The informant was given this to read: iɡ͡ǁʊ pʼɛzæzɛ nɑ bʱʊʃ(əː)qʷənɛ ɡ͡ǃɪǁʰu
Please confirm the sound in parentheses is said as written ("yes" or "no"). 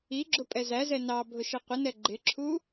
no